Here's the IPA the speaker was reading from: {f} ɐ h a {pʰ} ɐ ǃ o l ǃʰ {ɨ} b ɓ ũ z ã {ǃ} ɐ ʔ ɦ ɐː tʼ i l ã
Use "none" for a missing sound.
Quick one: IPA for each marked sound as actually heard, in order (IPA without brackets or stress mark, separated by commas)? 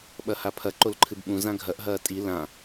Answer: ɓ, pʰ, ɨ, ɡʱ